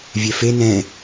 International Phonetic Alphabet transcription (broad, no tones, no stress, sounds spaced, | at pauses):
vʲ ɛ f e n ɛ̃